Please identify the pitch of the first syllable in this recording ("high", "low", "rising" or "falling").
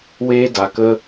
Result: high